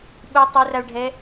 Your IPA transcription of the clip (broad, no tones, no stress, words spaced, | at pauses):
ɓu tˤeraɭɖʱɛ